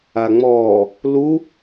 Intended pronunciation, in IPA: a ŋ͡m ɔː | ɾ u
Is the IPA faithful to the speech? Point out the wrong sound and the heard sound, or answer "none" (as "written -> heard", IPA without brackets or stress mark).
ɾ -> l